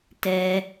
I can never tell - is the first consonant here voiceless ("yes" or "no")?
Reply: yes